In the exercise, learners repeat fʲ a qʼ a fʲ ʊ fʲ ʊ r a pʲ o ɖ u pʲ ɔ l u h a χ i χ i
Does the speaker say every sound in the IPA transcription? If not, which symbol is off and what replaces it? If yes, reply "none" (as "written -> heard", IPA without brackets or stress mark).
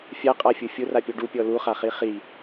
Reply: h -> χ